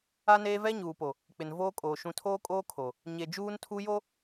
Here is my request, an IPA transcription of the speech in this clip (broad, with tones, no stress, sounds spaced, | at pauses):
a˦ n eː˦ v ɛ˦ ɲ uː˨ p o˨ | k͡p ɪ˨ n v oː˦ kʼ oː˨ ʃ ũ˨ tʰ oː˦ kʼ oː˦ kʰ o˨ | ɲ e˨ d͡ʒ uː˦ n tʰ u˦ j o˦